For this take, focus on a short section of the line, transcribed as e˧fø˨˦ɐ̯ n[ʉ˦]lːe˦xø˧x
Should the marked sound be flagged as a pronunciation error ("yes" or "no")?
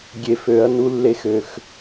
yes